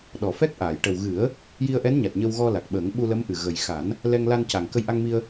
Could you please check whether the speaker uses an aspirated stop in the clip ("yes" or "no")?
no